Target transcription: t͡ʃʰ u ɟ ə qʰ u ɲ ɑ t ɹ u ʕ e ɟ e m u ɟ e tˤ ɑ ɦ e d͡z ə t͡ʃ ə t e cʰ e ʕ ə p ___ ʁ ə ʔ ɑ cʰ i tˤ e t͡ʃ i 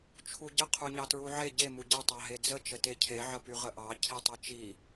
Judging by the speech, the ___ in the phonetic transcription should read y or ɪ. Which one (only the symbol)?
y